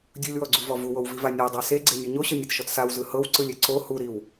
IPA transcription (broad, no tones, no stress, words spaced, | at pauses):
dʲulʲwɔɡ͡ǀuvɔ vuwowviva nʲɤdˤa seɡ͡ǀenʲu ɲoɕɤnʲɯtʃɔt sawzɯ hɤwǀɯlʲe ǀo huɾiw